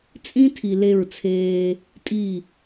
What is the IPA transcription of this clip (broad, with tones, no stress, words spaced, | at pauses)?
t͡sʼĩ˦tʰi˨ le˦˨ɹt͡sʰeː˦ | tʼi˦˨